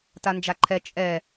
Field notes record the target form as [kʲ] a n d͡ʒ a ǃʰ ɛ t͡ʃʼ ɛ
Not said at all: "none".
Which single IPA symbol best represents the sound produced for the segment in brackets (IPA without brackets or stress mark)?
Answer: t